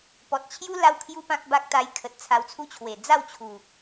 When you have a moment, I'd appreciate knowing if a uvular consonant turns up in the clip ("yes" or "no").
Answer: no